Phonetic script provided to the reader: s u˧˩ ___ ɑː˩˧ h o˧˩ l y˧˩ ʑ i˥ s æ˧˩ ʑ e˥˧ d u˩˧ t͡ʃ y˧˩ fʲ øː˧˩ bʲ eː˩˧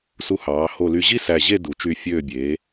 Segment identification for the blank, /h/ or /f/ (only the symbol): h